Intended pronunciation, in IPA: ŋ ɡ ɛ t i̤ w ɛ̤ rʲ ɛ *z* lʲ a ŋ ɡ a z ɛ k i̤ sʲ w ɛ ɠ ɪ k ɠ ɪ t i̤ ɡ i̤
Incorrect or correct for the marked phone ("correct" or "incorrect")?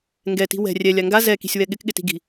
incorrect